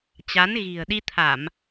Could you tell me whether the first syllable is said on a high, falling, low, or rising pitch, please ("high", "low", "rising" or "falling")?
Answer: rising